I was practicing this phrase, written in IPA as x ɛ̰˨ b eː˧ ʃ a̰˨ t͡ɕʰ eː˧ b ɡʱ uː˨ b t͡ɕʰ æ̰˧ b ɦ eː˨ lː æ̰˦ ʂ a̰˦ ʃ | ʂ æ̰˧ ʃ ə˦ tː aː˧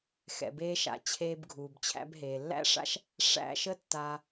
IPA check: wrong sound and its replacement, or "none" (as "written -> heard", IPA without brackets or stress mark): none